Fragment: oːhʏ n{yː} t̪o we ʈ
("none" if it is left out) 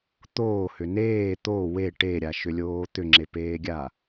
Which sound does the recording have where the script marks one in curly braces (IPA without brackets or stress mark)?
eː